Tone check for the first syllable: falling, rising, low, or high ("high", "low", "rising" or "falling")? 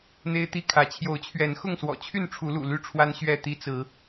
high